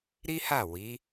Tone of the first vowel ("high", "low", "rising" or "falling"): high